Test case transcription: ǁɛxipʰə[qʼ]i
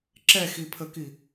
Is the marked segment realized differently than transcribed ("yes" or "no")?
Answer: yes